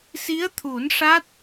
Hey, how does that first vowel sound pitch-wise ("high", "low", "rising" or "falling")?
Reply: rising